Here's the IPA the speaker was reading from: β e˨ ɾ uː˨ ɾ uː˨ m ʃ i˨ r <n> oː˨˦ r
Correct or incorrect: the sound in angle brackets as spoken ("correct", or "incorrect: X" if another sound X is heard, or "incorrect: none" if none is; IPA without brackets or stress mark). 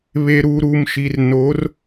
correct